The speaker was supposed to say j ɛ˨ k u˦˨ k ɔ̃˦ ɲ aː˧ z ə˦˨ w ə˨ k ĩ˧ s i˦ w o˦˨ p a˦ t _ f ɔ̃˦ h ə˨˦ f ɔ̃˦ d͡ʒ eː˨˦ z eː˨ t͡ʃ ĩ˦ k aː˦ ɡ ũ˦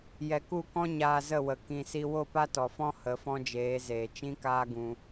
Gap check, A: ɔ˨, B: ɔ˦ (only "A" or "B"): A